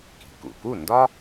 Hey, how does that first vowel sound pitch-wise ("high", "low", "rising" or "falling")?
low